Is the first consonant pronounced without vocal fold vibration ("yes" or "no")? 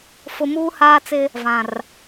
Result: yes